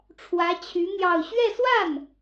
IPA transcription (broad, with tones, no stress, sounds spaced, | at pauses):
ʈ͡ʂʰ w ä˧˥ t͡ɕʰ y˧˥ n̪ j ɑ˥˧ ʊ̯ ɕ ɥ ɛ˥˧ s w a˥˩ n